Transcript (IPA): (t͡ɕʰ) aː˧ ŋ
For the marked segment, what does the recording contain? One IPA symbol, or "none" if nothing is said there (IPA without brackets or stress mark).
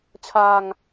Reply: t͡ɕʰ